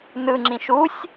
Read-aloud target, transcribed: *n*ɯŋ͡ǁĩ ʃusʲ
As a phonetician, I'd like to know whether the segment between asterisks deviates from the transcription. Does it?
no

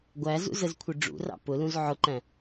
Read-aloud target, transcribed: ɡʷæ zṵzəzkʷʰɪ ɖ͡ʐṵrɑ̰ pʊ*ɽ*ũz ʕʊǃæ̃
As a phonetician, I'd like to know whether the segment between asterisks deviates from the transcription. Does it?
yes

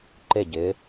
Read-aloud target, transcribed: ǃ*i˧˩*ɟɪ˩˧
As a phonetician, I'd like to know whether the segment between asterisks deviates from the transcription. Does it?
yes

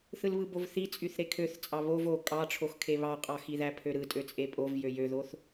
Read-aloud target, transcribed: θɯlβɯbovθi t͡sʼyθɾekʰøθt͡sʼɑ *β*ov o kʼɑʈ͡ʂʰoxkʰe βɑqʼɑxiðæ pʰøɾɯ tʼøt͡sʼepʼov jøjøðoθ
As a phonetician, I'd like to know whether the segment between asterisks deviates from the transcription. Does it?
no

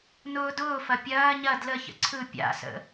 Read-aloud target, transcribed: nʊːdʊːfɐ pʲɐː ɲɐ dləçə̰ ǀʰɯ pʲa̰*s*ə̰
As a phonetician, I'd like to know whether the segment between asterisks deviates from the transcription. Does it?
no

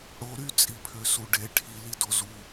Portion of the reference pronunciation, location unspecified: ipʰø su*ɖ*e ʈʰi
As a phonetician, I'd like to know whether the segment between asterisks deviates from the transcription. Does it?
no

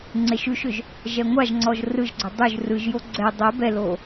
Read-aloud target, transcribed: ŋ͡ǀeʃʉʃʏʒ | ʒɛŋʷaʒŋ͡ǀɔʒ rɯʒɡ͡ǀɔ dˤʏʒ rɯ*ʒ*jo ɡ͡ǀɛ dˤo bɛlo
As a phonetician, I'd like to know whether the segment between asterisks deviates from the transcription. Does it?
no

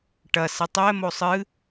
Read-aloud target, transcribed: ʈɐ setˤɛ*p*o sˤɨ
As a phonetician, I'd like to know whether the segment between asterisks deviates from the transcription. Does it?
yes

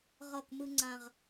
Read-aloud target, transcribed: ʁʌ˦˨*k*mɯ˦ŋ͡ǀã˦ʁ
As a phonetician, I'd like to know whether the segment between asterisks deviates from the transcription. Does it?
no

